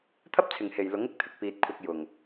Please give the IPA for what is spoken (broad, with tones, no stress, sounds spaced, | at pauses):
t̪ʰ ɐ˥ p̚ t͡sʰ ɪ˨ ŋ h e˨ j l ʊ˨˥ ŋ ɪ˧ k̚ t̪ʰ ɪ˨ k̚ p iː˧ t̚ kʷʰ ɐ˧ k̚ j ʊ˨ ŋ